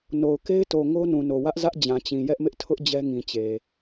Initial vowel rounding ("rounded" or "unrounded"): rounded